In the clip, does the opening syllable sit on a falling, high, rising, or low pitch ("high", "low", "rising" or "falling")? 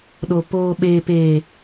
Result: low